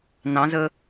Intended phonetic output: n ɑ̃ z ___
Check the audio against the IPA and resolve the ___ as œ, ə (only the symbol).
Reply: ə